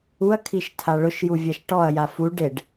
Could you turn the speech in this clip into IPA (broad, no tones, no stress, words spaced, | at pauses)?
uɐ̯kʰiʃ tʰaɭʊʃju vʲaʃʈɔɐ̯ja fu ɖeɖ